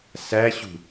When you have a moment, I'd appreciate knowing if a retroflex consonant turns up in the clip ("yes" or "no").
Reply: no